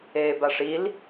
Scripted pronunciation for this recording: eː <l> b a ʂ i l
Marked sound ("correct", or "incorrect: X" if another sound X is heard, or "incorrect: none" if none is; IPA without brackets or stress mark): incorrect: none